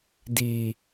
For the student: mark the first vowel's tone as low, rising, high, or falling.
low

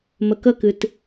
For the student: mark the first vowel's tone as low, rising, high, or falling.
low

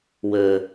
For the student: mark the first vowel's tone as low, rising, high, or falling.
low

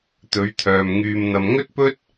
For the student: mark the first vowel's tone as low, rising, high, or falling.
rising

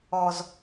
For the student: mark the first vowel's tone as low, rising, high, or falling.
low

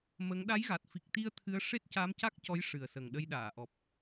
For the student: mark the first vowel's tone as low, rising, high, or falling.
rising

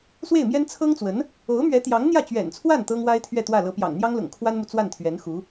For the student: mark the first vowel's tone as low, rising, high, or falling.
falling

